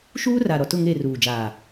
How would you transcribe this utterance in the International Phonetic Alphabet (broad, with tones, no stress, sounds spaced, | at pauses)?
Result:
ʃ uː˦ r a˨ ɾ ɔ˨ t ʊ˦˨ ŋ e˦˨ r uː˨ d͡ʒ aː˨